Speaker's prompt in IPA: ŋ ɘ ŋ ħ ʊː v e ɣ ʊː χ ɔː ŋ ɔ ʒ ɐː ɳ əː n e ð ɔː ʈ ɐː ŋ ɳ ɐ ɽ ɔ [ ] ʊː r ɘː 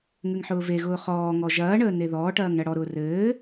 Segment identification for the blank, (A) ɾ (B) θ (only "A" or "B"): A